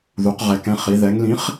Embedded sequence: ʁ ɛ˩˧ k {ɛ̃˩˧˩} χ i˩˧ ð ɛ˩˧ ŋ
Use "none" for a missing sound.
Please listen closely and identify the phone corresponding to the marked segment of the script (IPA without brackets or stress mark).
ɛ̃˩˧˩